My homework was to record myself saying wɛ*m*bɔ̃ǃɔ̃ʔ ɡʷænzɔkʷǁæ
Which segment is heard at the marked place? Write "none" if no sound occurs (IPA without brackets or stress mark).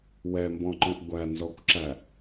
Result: m